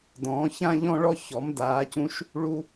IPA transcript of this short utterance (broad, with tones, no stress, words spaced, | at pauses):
dɔ̃ː˩˥ çã˦ʎɔ̃˦ɭɔ˦ çɔ˩˥mdaː˩˥cũ˦ʃ | ɭu˦